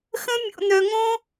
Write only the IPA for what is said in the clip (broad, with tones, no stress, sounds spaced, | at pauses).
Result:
x ə̃˦ mʲ o̰˧ n̪ œ˧ ŋ õ˦